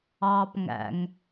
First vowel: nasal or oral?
oral